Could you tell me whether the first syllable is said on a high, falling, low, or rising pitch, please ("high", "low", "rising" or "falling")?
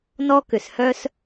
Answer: high